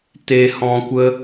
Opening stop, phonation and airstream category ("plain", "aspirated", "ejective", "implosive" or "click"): plain